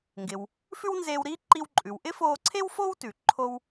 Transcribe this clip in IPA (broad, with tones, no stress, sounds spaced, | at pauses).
ŋ ɡ ɪ˩ w | f ʉ˥ w n z eː˧ w ɾ iː˥ ǃ i˧ w ǃʼ ʉ˩ w ʔ ɪ˥ f oː˧ ǀʰ e˥ w f o˥ w t ʉ˩ ǃʰ o˧ w